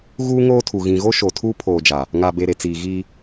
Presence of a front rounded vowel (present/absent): absent